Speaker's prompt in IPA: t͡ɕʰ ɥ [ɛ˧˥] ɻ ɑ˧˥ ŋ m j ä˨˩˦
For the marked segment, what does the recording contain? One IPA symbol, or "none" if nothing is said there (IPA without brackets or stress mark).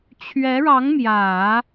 ɛ˧˥